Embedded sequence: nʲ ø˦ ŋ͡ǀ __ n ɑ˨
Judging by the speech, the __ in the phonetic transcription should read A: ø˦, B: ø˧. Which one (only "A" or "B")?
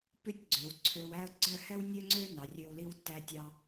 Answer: A